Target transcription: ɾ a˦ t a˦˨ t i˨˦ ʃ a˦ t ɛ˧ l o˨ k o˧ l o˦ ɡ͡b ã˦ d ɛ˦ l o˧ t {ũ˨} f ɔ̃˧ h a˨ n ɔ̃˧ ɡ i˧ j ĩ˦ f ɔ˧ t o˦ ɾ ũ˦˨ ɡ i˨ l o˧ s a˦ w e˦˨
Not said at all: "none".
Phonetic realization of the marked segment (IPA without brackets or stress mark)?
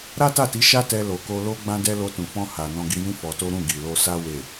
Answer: ũ˨